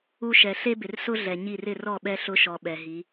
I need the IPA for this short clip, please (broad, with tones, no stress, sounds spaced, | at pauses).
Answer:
u˦ ʃ ɛ˨ ɬ e˦ b ɪ˨ r s ʊ˦ ɮ ɛ˨ ɲ i˦˨ r ɪ˦˨ r ɔ˦˨ ɓ ɛ˦ ɬ ʊ˦ ʃ ɔ˨ ɓ ɛ˨ ɦ i˨˦